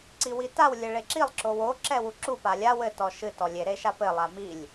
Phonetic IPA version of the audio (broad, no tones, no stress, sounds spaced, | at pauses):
ǀ i w i t a w lʲ ɘ ɭ e ǁ i lˠ ǁ o w o ǁ ɛ w u ǁ u p a lʲ a w ɘ t ɔ ʃ ɨ t ɔ lʲ e ɾ e ʃ a p ɘ lˠ a m i lʲ